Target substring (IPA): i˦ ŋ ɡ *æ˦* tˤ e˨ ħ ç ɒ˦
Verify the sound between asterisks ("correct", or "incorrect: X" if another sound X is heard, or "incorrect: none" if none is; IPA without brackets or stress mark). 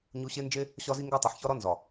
correct